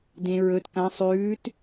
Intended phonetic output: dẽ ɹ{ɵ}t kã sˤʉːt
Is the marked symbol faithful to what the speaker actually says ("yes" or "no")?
yes